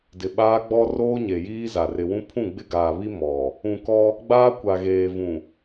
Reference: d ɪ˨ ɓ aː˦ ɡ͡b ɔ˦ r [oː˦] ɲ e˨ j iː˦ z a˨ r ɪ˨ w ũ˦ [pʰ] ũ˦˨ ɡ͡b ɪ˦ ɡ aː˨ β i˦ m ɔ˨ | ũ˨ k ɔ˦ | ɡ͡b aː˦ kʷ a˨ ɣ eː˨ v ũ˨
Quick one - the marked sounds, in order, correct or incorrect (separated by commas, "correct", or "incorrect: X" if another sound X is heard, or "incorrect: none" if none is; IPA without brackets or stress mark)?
correct, correct